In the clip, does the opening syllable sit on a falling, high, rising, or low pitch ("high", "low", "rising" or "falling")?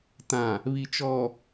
low